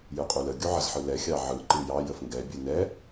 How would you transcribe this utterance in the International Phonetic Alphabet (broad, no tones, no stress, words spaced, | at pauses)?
jɯqʼulə ɡʲuʕəz ħɯlɛ xʲɑʕɯ ǃɯjɑ jəfŋɡɛ bʲɯnɛ